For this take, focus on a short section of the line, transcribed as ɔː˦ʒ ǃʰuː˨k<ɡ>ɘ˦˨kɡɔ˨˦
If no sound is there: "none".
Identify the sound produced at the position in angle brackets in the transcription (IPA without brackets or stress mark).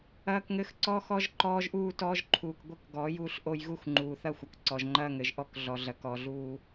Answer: ɡʷ